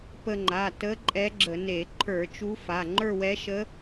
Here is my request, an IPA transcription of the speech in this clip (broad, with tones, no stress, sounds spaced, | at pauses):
p ə˧ ŋ͡ǃ a˩˧˩ t ə˧˥ ǃʼ ɛ˧˥ ɡ͡ǁ ə˧˩˧ n e˧˩˧ ǃʰ ə˞˧˩˧ t͡ʃ u˧˥ f a˩˧˩ ŋ͡ǃ ə˞˥˧ w ɛ˧˥ ʃ ə˧˥